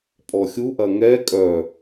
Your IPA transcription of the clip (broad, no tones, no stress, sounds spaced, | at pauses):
pʼ ɔ xʲ u ʔ ɐ ŋ ɛ kʼ œ